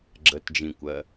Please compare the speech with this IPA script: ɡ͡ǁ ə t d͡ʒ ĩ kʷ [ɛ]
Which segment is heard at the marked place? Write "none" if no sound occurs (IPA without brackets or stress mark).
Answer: ɜ